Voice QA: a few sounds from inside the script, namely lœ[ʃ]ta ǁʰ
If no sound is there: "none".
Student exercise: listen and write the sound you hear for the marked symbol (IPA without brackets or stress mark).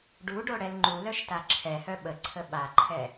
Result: ʃ